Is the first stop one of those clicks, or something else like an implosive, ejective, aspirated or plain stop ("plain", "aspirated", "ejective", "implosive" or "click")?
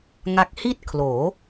plain